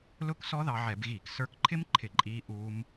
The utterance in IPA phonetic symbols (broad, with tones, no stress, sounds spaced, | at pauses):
l ʊ˦˥ k s ɔ˦˥ ð ɑ˧ ʕ ɛ˧˩˧ b ɣ iː˧˩˧ k s ə˞˧ k ǃʰ ɪ˦˥ m ǃʰ ɪ˧˩˧ ǃʼ iː˦˥ ʔ uː˦˥ m